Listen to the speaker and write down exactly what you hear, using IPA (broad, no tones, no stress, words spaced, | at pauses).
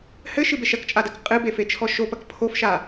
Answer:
hɘʃɨbeʃ ɐkt͡ʃʼadɐk qʼɨbefet͡ʃʰɔ ʃopɐk pʰofʃa